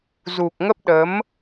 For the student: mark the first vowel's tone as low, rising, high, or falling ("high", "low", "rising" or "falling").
low